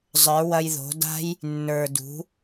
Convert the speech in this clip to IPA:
zˤ ə˞˨˦ w ɐ˧ j ð o̤˨˦ d a̤˦ j | nː ə˞˨ d ṳ˨˦

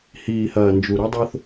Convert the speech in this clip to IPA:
h iː˨ h ɐː˨ n d͡ʒ u˨ ɾ u˦ dˤ o˦ θ

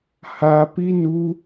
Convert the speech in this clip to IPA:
h a p i n u

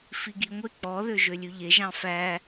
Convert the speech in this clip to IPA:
f i ɡ i ŋʷ e k͡p ɔ ð ø ʒ ø lʲ ʉ ʎ e ʒ ɑ̃ f æ

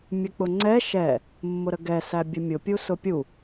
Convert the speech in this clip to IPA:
mʲ ə k͡p ʊ ŋ͡ǀ ɛ ʃ ɛ | mː ʊ ɾ ə ɡ ɛ s æ bʲ ə mʲ ʊ pʲ u s ʊ pʲ u

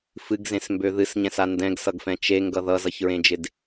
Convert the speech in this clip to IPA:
f ɨ ɡ z ẽ s m b ø ð ɨ s ɲ ɛ̃ s a n d ɛ̃ ɡ s ʌ ɡ f ɛ̃ t͡ʃ e ŋ ɡ ʌ ð ʌ z ʌ ç ɹ ẽ d͡ʒ ɪ d

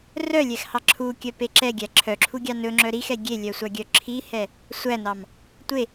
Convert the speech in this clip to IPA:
r œ lʲ ɛ x h ɑ ǁʰ u kʲ œ p e ǁ ɛ ɡʲ æ ǁʰ œ ǁʰ u ɡʲ ɑ n ɵ ŋ͡ǁ œ ɾ i x ɛ ɡʲ e lʲ œ sʷ ɑ ɡʲ œ ǁʰ i h ɛ | sʷ æ n ɑ m | tʷ e

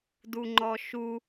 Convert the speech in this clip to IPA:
d u ŋ͡ǃ ɔ ʃ u

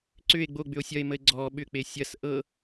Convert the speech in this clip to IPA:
ǀ ʏ e̯ ɡ͡b o ɡ͡b ʏ o̯ sʲ ɐ e̯ m ə e̯ ɡ͡ǀ ɔ ɓ ʏ k͡p e sʲ ɐ s ʔ ɤ

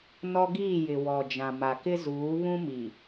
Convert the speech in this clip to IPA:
n ɔ˦ ɡ iː˦˨ j ɪ˨ w ɔ˨ d͡ʒ ã˨ m a˨ k ɪ˦ z uː˨˦ β ũ˦ m i˨

